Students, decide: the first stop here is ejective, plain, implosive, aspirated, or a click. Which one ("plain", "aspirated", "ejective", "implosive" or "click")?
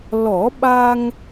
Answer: implosive